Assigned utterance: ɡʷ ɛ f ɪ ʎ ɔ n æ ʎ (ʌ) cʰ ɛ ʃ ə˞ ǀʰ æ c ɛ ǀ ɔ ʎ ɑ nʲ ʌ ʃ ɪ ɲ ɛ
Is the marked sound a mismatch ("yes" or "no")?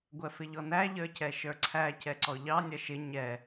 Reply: yes